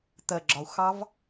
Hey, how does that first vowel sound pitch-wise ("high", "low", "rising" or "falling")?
low